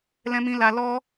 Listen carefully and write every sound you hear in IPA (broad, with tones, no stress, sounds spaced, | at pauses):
l ɛ̃˧ m ĩ˧ l a˧ l ɔ˦